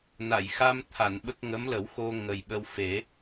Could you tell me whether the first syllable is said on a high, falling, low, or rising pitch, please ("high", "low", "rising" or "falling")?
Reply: low